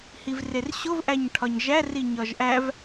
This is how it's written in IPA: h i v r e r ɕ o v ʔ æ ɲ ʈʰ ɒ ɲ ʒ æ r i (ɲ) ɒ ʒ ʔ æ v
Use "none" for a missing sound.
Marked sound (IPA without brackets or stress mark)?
ɲ